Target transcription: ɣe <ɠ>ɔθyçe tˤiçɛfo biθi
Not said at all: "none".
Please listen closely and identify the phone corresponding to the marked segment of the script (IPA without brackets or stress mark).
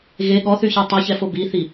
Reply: ɠ